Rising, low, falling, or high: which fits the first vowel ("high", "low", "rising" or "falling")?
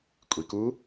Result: low